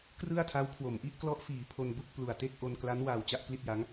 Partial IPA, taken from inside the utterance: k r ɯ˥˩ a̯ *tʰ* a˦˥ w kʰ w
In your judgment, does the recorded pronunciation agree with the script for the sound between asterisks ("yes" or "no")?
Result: yes